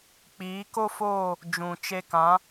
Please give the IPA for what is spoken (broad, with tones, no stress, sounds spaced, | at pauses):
k͡p iː˨˦ k o˦ f oː˦˨ | d͡ʒ ũ˨ t͡ʃ e˧ k ã˨˦